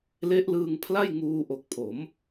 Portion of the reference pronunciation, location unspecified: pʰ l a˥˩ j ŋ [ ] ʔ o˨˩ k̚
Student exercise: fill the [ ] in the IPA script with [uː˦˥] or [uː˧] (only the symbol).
uː˧